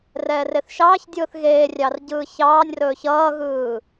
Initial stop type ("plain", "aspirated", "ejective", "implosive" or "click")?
plain